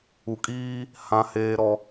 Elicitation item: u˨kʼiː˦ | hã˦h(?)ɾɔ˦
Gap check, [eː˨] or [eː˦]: eː˦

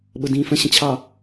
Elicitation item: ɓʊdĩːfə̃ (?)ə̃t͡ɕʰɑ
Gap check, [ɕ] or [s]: ɕ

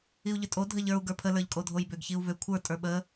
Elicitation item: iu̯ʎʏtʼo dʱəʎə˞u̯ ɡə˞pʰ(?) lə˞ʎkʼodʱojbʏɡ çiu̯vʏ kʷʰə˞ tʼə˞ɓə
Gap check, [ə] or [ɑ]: ə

